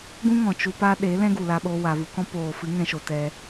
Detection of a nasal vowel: present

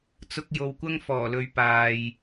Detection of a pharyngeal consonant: absent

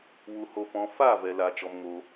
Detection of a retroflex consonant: absent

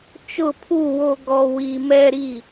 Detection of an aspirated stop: present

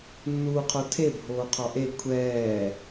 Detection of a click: absent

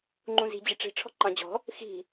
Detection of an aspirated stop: present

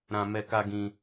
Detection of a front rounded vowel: absent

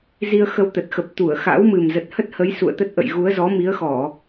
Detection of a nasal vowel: absent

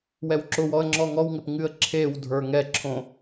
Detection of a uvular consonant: absent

